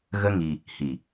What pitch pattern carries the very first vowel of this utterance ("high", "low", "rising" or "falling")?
high